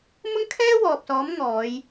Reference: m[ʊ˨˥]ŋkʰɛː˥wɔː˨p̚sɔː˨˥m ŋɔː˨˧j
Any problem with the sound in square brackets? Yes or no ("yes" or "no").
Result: yes